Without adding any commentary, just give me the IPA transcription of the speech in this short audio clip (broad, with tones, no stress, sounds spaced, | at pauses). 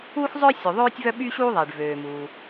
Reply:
uː˥ x zˤ œ˥ sʲ u˩ ðˤ øː˥ tʲ v œ˥ ɓ y˥ ɕ uː˥ ðˤ e˩ ɖ v øː˩ m uː˩